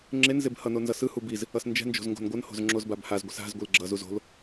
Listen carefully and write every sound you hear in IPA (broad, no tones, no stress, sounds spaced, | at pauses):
ŋ͡ǁ e n z e b h ʌ n o n z ʌ s ɯ h u b i z | ʌ s n d͡ʒ ɛ̤ n d͡ʒ o̤ z ŋ ɡ o̤ n ɡʷ ʌ n h o̤ z ŋ͡ǁ o z b a b h a z ɡʷ i s a̤ z ɡʷ i l ɡ͡ǁ ʌ z u z o̤ l